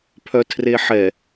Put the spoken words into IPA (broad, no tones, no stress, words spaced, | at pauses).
pʰœtʰreħɛ